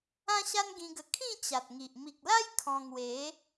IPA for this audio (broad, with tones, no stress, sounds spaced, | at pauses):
ã˦ ɕ a˦ n ɡ ĩ˧ ɡ ə˧ kʰ ĩ˥˧ t͡ɕ a˨ t̚ ŋ i˨ ʔ m i˨ k̚ l a˦ j kʰ ɔ̃˧ ŋ w e˨˦